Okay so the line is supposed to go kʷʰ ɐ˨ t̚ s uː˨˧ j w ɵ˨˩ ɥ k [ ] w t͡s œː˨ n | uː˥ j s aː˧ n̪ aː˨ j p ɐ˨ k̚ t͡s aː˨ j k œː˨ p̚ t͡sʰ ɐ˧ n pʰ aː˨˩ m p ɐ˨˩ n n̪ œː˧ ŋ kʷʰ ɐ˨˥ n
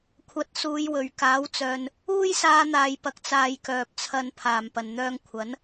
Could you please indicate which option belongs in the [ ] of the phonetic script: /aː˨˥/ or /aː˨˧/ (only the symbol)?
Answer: aː˨˥